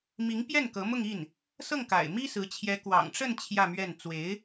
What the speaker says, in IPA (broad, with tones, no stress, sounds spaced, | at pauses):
m i˧˥ ŋ p j ɛ˥˩ n k ɤ˧˥ m ʊ˥˧ ŋ i˥˩ n | s ɤ˥˩ ŋ k a̰˨˩ ɪ̯ m i˥ s ɹ̩˧˥ t͡ɕʰ j ɛ˧˥ k w ɑ̰˨˩ ŋ ʈ͡ʂ ə˥˧ n t͡ɕʰ j ä˥˧ m ɥ ɛ˥˩ n t͡s w e˧˥ ɪ̯